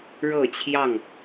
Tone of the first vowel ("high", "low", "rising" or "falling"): falling